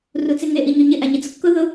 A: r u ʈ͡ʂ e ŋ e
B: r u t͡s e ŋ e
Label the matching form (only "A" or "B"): B